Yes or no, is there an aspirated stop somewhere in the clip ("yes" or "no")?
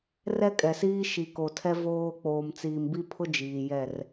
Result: yes